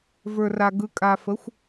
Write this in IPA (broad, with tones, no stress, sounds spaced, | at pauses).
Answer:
v ə˞˨ r a˨ ɡ ɯ˨ kʼ a˨ f ə˨˦ xʷ